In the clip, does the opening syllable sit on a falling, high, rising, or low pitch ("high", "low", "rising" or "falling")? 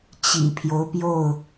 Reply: low